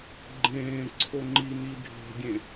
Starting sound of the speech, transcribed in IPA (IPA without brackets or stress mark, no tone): ɡ͡ǃ